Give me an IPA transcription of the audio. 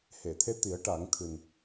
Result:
h e˨˩˨ t̪ʰ e˧ t̪ i˨˩˦ ə̯ ʈ a˨˩˦ ŋ t̪ʰ ɨ˨˩ n

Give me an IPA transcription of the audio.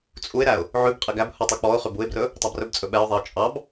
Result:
t͡sʼ u ɪ̯ ɾ æ ʊ̯ | ʕ ʉ b qʼ i ɡ æ b h u tˤ ʉ k͡p ɔ ʊ̯ χ ʉ b u ɪ̯ b r ɵ | tˤ ɑ b r ɵ b t͡sʼ ɵ ɓ ɛ ʊ̯ ðˤ i ʊ̯ t͡ʃʼ ɑ b

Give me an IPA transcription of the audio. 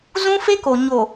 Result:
z ũ˦ f e˦ k o˨ ɲ o˨

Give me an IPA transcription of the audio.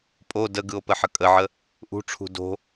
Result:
pʼ o d ə ɡ ɯ o̯ p ə ħ ə kʼ ə ʕ ə | ʔ ṳ ʈ͡ʂʰ ṳ d o̤

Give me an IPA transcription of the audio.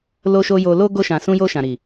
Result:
l o˧ ʃ o˧ j o˧ l o˦ ɡ o˧ ʃ ã˨ s ũ˧ j o˧ ʃ ã˨ ɾ i˨

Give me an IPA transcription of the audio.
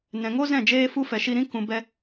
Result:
n ɛ̃˨ ŋ o˦ z ɛ̃˦˨ d͡ʒ eː˦ f u˦ f ɛ˨ ʃ i˧ ɾ ĩ˦ k ũ˨ b ɛ˧

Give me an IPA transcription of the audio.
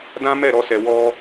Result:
d ã˦ m ɛ˦˨ ɾ ɔ˧ s ɛ˨ w ɔ˧

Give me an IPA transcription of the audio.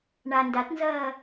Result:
ɳ a n d a t n z ɐː

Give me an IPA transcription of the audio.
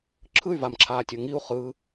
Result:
ǁʰ ɯ y̯ v a m ǁʰ aː tʲ ɤ ŋ i u̯ χ ɯ

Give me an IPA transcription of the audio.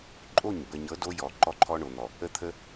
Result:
ǃʼ o˦˨ ɲ b ə˨ ɲ ɤ˨˦ d o˦ j ɔ˨ ǃ ɔ˦ ǃʰ ɔ˦ ɳ o˨ n̪ ɔ˨ | ə˦ t̪ʰ ə˦

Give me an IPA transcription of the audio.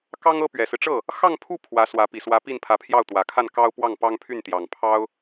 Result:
k ɑ˥ ŋ ɤ˥ p ɥ ɛ˨˩ s ɹ̩˦ ʈ͡ʂ ɤ˥˩ | x ɑ˥˧ ŋ pʰ u˥˩ pʰ w ä˧˥ s w ä˧˥ p i˨˩ s w ä˧˥ p i˥˩ n pʰ ä˧˥ pʰ j ɑ˥˩ ʊ̯ t̪ w ä˨˩ kʰ a˥˩ n k ɑ˥ ʊ̯ p w ɑ˥˩ ŋ p ɑ˥ ŋ pʰ y˥˩ n t̪ j ɑ˨˩ ŋ pʰ ɑ˥ ʊ̯

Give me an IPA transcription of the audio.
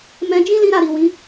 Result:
m ɛ̃˧ d͡ʒ ĩ˦ l ĩ˦ ɾ a˦˨ ɾ i˨ w ĩ˨˦

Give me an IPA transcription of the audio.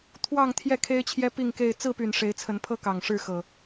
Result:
t̪ʰ w ɑ˥˨ ŋ t̪ʰ j ɛ˥˨ kʰ e˦ ɪ̯ t͡ɕʰ j ɛ˦ p i˥˨ ŋ k e˥˨ ɪ̯ t͡s ɹ̩˥˨ p y˨˩ n ʂ e˨˦ ɪ̯ t͡sʰ ə˨˦ n pʰ ɤ˦ k ɑ˨˩ ŋ ʂ ɻ̩˥˨ x ɤ˨˩

